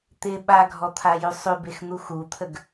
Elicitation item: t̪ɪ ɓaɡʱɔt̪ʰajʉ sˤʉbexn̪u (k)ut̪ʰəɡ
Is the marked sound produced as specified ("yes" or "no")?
no